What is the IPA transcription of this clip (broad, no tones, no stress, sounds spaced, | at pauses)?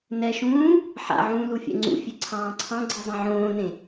n ɛ ʃ ũː | ħ a̰ ʕ ũː l u fʲ ɛ̰ ŋ͡ǀ ṵ fʲ e ǀʰ ɑ̃ː ǀʰ ɑ̃ ɡ͡ǀ i zˤ ĩ ʕ õː n ẽ